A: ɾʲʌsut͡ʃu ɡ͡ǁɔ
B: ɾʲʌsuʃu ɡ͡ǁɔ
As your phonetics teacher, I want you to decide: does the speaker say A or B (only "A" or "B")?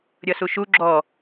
B